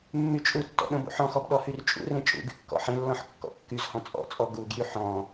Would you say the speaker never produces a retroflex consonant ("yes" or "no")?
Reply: yes